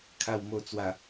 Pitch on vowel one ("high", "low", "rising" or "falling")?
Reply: low